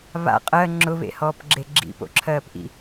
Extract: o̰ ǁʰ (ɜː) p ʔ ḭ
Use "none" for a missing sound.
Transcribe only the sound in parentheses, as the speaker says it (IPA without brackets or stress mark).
ɜː